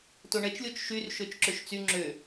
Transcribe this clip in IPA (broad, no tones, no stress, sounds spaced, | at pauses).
t o ɳ ɛ t͡ʃ lʲ o t͡ʃ ʃ y r ʃ ø t͡ʃ ǁ ø ʃ t͡s y ŋ͡ǁ ø